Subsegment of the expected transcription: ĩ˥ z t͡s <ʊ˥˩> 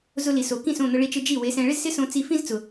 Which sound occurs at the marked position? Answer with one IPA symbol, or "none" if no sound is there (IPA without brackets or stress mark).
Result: ʊ˩